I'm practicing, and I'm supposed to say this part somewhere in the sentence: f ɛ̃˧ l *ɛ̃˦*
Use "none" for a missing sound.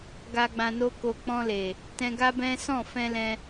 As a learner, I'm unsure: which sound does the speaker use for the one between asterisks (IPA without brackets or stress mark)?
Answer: ɛ̃˦